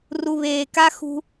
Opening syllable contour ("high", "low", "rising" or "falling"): low